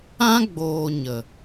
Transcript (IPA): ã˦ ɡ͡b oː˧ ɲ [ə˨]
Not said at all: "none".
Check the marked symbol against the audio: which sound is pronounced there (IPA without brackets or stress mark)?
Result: ə˨